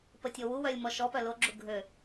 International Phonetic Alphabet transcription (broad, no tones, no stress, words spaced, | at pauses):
pətʲowuwœlʲ mɔʃɔpœ loɡ͡ǁu ɡʱø